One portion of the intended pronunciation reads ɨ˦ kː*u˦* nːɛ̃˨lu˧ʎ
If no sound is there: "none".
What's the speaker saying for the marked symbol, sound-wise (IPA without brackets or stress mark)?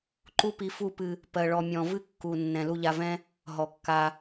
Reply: u˨